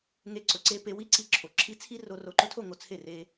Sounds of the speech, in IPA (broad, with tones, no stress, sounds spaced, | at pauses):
ŋ e˧ ǀ ɵ˨ ǀ e˧ p e˧ w i˦ ǀ i˧ ǁʰ o˨ ǁʰ i˦ t͡sʰ i˦ r o˧ r o˨ ǃ ɵ˧ tʰ o˦˨ ŋ o˨ t͡sʰ e˦˨ r e˧